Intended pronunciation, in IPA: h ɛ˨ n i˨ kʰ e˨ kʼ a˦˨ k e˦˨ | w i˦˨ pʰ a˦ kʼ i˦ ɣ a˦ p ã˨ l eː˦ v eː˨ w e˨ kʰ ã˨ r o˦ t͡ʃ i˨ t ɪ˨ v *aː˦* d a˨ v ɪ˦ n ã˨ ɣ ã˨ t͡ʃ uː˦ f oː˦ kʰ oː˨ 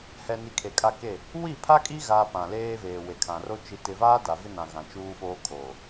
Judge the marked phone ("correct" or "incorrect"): correct